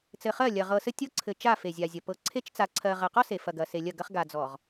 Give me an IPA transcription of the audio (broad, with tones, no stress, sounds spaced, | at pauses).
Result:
t͡s ɘ˨ χ ɜ˦˨ lʲ ɐ˨ ʁ ɤ˨ s ɘ˦ tʲ ɤ˦ ǀʰ ɘ˨ t͡ʃ a˦˨ f e˨ zʲ a˨ zʲ ɐ˨ p ɤ˨ ǀʰ e˦ t͡ʃ t͡s a˨ ǀʰ ɜ˨ ʁ ɜ˨ q ɔ˦ s e˨ f ɐ˨ ɡ ɐ˨ s e˨ lʲ ɐ˦˨ ɡ ɐ˦ χ ɡ a˨ d͡z ɔ˨ ʁ